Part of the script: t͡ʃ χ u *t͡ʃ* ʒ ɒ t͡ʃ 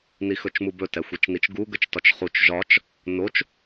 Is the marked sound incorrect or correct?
correct